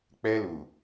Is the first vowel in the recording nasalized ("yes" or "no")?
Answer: no